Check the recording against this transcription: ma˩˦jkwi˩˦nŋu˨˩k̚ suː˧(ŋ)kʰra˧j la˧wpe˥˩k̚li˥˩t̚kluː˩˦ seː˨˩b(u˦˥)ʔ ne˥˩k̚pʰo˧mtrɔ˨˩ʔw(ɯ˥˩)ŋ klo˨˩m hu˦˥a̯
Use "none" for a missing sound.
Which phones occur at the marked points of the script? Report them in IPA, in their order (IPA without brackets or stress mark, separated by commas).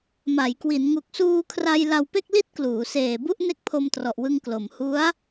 none, u˥˩, ɯ˧